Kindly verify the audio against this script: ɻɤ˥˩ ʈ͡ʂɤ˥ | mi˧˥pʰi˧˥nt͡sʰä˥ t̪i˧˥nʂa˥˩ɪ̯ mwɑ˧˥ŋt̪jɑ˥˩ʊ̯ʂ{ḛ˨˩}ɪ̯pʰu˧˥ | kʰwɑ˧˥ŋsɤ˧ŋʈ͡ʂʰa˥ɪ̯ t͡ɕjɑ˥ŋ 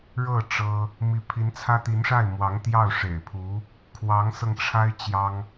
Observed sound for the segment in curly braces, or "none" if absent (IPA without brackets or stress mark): ḛ˨˩